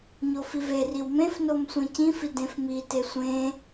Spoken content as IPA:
ɲ o f i v e r i w m ẽ f n o m sʷ ẽ c ĩ f i d ẽ f m i t e sʷ ẽ

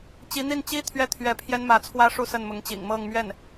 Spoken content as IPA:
t͡ɕ i˧˥ n̪ i˥˩ n t͡ɕ i˥ t̪ʰ ɥ ɛ˥˩ t̪ʰ ɥ ɛ˧˥ pʰ j ɛ˥ n m ä˧˥ t͡sʰ w ä˥ ʂ u˥ s ə˥˩ n m ʊ˧˥ ŋ t͡ɕ ḭ˨˩ ŋ m ɤ˥˧ ŋ m ɥ ɛ˥˩ n

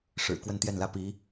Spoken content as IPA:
ʂ ɻ̩˨˩ k w ə˥˧ n t̪ j ɛ˥˩ n l ä˥ p i˧˥

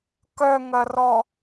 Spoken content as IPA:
k œ ŋ ɐ r ɔ

